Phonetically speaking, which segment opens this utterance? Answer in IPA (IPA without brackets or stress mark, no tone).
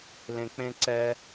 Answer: l